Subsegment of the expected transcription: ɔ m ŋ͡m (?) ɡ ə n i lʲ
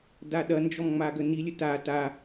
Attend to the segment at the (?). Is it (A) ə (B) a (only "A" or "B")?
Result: B